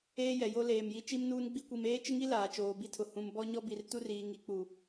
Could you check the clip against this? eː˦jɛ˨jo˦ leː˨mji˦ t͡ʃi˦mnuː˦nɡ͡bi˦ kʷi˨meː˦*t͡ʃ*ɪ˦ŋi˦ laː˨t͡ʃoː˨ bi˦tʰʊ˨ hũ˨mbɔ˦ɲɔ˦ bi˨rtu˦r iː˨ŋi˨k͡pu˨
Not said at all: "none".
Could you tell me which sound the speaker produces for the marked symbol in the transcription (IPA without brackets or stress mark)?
t͡ʃ